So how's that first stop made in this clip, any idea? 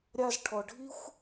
aspirated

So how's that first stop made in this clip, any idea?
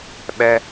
implosive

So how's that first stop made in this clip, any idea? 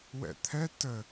aspirated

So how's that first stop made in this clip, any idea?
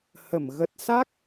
plain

